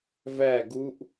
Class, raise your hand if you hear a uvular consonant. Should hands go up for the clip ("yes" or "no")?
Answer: no